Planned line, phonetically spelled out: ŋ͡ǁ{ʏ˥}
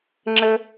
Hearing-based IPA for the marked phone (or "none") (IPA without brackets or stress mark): ə˥